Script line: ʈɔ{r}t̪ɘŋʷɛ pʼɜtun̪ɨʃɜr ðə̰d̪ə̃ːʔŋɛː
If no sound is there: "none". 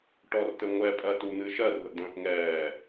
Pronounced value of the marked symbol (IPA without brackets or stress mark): r